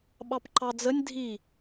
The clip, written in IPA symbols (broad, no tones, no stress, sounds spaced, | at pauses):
ɓ ɑ p ǃ ɑ d͡z ə nʲ dʱ i